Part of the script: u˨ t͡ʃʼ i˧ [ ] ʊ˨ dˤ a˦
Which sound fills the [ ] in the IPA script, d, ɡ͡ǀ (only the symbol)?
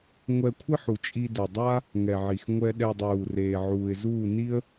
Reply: d